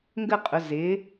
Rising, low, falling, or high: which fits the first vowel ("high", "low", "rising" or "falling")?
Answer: falling